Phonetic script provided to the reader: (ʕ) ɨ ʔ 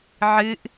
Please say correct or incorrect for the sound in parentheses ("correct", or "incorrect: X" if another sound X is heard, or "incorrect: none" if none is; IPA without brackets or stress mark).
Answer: correct